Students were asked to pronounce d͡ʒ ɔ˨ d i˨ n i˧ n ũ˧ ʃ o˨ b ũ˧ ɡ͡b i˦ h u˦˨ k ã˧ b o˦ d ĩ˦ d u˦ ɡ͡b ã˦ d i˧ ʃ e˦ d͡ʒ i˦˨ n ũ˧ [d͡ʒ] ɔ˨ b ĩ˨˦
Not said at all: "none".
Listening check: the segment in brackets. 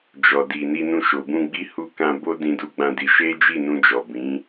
d͡ʒ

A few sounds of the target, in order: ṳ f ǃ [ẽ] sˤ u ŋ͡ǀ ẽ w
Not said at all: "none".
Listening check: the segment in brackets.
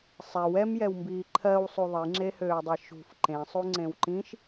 ẽ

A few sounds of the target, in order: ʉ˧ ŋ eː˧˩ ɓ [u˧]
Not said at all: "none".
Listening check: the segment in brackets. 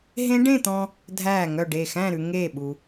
u˩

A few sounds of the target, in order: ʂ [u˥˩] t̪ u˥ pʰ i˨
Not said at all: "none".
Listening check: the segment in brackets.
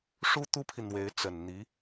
u˥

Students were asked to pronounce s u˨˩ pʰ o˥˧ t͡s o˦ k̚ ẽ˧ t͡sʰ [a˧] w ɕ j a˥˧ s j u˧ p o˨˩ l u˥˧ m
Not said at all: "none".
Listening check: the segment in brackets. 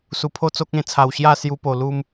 a˨˩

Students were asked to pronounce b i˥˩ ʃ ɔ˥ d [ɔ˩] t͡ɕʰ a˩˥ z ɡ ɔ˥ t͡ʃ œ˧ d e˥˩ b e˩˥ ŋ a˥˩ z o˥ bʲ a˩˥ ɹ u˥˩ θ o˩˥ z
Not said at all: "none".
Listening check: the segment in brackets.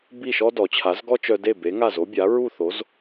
ɔ˩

